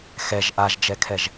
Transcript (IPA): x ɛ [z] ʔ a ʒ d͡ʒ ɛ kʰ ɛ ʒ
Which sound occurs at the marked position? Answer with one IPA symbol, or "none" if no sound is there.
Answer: ʒ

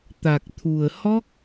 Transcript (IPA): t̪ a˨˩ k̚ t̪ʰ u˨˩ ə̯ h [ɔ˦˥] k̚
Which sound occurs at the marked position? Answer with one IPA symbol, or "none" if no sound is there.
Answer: ɔ˦˥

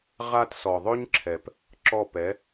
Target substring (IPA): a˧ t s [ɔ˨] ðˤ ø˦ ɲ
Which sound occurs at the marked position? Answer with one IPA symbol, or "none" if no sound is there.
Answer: ɔ˨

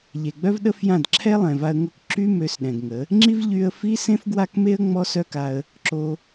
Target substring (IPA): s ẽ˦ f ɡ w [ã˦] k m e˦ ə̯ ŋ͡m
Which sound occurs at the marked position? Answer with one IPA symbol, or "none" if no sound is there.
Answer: a˦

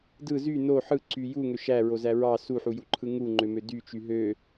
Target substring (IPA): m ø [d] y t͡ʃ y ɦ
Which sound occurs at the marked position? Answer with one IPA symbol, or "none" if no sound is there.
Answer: d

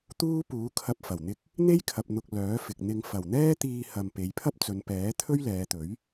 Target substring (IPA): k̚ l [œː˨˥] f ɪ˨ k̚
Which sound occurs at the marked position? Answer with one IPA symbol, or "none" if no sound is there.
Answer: œː˨˥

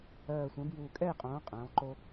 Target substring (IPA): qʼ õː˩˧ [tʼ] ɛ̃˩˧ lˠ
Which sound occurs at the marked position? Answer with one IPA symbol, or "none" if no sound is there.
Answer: qʼ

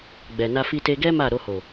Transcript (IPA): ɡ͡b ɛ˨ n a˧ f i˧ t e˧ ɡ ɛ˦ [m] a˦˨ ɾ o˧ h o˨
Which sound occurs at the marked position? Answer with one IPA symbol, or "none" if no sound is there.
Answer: m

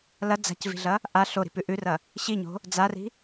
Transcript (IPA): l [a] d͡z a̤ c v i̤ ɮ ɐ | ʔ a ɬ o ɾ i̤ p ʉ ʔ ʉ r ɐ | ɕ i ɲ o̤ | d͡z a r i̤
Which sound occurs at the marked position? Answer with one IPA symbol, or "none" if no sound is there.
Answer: ɐ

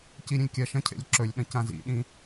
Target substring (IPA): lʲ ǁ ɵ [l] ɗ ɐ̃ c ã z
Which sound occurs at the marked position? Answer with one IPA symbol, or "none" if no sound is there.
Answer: lʲ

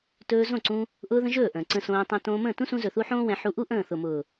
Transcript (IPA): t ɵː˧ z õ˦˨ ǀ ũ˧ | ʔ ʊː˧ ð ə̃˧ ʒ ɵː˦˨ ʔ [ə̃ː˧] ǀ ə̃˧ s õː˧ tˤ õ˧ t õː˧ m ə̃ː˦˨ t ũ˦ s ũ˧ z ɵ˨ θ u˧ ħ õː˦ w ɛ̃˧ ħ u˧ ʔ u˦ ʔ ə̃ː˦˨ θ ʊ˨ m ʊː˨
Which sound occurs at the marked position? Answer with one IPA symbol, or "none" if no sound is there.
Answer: ə̃ː˨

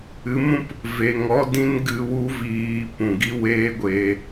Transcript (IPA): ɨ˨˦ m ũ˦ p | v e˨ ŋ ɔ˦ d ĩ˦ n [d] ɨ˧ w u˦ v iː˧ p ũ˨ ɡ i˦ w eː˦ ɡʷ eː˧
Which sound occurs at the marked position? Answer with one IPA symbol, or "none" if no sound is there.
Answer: ɡ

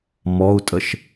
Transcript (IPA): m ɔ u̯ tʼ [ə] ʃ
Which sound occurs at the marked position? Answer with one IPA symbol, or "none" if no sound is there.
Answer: ə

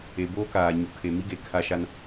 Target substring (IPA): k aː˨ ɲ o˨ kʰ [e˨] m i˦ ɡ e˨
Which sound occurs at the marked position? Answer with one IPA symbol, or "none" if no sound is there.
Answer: e˨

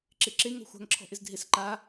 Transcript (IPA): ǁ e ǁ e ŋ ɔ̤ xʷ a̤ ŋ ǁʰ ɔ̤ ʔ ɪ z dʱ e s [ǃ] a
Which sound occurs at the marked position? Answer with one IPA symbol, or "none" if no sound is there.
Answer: ǃ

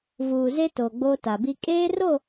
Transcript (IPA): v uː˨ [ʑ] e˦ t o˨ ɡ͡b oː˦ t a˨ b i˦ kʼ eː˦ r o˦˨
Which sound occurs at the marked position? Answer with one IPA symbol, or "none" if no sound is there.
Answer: z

